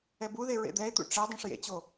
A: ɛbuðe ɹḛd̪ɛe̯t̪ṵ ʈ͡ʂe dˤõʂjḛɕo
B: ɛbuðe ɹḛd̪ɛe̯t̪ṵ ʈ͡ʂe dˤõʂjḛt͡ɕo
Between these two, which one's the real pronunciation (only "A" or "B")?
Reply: B